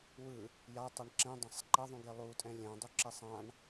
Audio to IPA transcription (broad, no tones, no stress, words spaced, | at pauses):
wɯ | jatˤʌɳ ǁɛ̃dˤãsˤ ǃʌðˤũɡe lˠutʼɛ̃ lʲɛ̃dˤuǁɛsˤ ãɳ